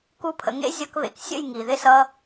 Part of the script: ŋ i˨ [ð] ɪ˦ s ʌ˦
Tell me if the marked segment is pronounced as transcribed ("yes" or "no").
yes